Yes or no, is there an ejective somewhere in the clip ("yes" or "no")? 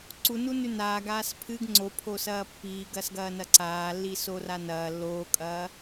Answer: yes